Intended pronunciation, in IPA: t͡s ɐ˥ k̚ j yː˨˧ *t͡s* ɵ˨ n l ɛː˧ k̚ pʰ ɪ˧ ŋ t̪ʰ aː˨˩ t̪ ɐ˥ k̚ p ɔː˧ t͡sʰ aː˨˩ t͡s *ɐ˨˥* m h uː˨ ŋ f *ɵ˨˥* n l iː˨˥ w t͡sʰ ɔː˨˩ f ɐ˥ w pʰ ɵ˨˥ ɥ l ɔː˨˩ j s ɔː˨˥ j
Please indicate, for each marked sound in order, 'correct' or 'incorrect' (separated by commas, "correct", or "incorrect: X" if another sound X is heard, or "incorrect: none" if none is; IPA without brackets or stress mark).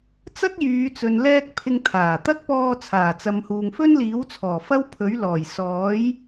correct, incorrect: ɐ˨, incorrect: ɵ˥